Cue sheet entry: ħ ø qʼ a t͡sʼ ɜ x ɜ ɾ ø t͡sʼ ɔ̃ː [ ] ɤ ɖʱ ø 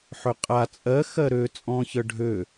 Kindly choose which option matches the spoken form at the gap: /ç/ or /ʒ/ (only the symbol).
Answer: ç